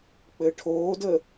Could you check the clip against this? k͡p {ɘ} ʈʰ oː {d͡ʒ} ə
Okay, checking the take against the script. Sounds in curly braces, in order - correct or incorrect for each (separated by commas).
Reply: correct, incorrect